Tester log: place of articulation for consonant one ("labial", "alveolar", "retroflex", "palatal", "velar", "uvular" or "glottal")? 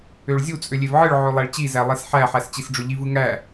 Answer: retroflex